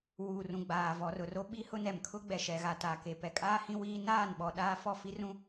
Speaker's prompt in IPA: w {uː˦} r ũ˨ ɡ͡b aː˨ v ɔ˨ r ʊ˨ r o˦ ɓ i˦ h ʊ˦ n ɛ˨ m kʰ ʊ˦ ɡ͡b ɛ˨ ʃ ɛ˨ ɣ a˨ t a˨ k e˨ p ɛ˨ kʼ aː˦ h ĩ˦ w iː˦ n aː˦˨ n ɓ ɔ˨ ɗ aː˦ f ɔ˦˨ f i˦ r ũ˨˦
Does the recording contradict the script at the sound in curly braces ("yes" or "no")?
yes